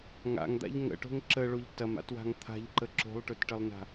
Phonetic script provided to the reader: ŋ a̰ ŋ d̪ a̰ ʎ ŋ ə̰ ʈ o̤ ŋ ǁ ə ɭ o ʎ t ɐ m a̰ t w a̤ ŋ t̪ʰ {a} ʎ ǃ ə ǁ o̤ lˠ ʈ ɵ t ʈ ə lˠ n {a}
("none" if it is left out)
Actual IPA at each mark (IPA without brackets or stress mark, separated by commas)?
a̤, a̤